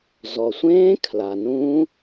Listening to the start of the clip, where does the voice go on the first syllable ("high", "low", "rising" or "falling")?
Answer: low